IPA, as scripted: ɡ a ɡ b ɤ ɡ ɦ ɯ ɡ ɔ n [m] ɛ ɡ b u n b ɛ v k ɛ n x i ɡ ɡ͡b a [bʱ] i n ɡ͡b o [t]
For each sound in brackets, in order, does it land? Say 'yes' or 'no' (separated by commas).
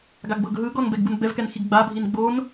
no, yes, no